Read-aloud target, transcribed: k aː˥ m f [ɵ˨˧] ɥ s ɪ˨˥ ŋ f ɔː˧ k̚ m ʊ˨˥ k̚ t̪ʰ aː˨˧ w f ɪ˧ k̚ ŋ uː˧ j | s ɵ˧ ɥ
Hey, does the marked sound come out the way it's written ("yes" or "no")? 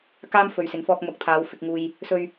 no